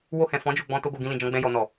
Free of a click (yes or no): yes